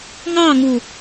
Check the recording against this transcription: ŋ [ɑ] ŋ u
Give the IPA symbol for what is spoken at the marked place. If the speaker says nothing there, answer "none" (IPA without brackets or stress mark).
ɑ